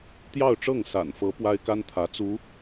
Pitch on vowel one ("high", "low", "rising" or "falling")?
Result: falling